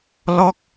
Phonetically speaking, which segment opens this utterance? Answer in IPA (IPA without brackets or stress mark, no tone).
l